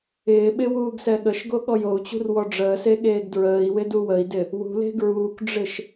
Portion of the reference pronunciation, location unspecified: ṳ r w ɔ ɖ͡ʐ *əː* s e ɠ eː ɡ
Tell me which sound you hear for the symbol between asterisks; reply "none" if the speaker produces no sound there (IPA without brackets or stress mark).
əː